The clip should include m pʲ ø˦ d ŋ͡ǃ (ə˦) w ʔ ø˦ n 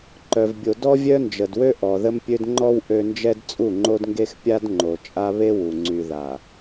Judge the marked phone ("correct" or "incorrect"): incorrect